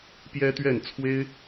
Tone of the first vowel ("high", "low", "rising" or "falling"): high